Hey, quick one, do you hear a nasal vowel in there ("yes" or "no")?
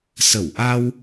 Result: no